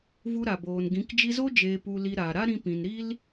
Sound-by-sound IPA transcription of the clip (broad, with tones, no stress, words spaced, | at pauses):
vu˧ɾa˨boː˨nɡĩ˨˦k d͡ʒi˧zo˦ d͡ʒeː˧pu˧li˧ɾaː˨ ɾa˦ɾĩ˧pĩ˨nɾi˦l